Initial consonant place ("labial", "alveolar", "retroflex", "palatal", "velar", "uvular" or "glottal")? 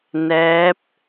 alveolar